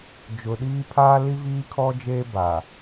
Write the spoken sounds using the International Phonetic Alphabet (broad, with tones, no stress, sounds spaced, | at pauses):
d͡ʒ ʊ˨ ɗ iː˦ pʰ aː˦ l i˦ v iː˦ kʰ ɔ˦ d͡ʒ eː˦ b a˨